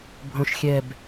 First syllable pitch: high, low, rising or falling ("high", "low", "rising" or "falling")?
falling